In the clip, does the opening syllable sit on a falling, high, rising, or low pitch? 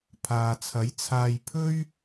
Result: low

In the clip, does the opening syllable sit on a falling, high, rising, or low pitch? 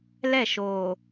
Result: falling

